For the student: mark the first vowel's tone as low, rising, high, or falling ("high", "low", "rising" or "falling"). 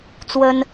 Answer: high